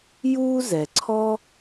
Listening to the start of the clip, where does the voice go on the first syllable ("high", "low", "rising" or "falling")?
high